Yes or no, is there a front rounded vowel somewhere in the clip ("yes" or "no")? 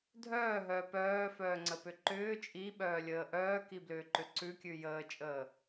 yes